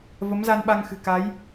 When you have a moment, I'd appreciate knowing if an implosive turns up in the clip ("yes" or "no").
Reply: yes